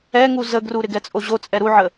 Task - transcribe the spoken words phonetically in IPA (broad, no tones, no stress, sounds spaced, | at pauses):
ɛ ŋ u z ə ɡ r u ɾ ɪ ɡ ɛ t͡sʼ o ʑ o t͡sʼ ɛ ɾ u ʕ ə